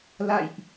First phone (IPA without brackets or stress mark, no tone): l